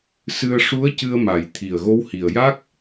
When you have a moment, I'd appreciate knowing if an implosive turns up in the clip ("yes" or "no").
no